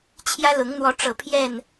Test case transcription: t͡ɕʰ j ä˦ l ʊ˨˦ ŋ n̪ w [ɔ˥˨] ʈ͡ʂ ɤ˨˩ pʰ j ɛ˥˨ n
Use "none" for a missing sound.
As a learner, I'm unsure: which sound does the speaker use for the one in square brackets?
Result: ɔ˨˦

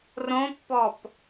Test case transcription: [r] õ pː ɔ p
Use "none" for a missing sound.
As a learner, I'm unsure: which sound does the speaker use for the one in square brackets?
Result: r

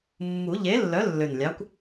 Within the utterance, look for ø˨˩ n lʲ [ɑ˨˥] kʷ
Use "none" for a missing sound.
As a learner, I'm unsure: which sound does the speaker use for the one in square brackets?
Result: ɑ˨˥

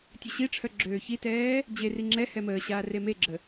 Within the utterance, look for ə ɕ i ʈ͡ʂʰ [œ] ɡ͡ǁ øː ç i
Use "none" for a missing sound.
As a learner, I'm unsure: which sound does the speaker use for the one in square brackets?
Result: œ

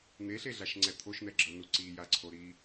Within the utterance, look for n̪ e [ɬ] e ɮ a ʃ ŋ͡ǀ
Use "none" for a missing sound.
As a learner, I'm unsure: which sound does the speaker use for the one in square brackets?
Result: ɬ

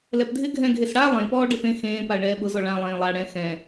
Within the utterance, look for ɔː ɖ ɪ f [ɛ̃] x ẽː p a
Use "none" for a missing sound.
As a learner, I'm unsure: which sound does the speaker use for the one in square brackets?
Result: ẽ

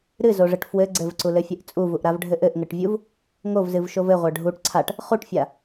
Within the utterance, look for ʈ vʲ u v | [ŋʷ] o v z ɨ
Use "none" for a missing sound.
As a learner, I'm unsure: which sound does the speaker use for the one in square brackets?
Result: ŋ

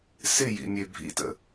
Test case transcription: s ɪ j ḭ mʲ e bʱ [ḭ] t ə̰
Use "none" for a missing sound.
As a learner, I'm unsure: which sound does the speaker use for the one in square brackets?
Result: ḭ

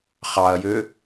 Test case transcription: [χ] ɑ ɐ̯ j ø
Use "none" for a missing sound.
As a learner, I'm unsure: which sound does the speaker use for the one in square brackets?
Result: χ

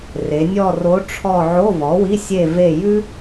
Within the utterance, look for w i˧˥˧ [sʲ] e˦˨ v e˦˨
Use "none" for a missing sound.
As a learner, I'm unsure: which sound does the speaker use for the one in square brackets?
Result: sʲ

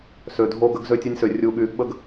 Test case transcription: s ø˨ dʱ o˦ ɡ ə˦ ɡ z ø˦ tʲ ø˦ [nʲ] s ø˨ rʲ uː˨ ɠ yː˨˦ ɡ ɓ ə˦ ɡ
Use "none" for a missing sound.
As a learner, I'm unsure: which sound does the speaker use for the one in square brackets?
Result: nʲ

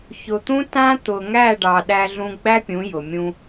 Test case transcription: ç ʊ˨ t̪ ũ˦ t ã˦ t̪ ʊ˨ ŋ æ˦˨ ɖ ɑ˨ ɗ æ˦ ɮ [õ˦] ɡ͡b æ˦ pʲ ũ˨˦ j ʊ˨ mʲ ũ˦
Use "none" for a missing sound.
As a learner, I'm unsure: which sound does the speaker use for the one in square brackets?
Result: ũ˦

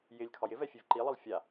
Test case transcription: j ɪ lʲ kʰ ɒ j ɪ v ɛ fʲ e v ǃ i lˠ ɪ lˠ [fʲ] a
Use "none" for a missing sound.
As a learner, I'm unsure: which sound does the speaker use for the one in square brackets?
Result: fʲ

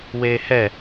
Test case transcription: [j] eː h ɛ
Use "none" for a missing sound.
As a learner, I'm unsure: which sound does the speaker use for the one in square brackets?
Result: w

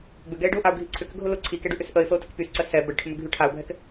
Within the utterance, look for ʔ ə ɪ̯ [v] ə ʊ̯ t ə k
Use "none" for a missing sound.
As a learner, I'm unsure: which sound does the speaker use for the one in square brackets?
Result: f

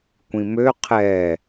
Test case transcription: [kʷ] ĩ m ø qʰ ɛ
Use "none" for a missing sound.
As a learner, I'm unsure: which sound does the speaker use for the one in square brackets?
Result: kʷ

